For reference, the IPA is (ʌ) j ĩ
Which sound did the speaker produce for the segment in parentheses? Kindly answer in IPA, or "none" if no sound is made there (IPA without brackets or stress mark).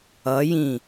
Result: ʌ